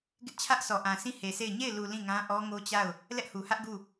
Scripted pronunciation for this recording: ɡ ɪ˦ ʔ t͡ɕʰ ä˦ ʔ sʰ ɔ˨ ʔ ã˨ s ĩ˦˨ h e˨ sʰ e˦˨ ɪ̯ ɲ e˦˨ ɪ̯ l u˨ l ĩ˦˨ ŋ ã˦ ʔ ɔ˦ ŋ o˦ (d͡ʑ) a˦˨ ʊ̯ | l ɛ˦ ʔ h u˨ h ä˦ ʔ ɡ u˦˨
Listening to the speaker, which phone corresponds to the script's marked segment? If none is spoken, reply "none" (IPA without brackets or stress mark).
t͡ɕ